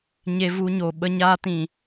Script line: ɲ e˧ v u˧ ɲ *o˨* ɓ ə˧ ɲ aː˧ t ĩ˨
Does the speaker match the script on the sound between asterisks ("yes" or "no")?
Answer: yes